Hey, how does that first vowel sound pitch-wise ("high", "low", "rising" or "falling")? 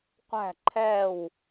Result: falling